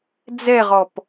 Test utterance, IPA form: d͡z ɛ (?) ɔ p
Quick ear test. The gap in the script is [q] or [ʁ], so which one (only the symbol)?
ʁ